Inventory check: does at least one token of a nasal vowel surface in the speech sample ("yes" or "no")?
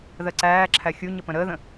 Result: yes